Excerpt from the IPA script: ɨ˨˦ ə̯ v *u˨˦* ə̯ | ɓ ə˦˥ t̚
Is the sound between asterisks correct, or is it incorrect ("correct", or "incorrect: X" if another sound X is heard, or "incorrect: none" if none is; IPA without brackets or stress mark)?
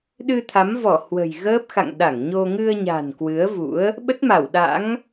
incorrect: ṵ˧˥